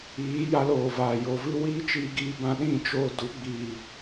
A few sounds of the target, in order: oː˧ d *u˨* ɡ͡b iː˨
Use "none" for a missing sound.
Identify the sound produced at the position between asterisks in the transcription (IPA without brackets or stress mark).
u˨˦